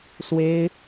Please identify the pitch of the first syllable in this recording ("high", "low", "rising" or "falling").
high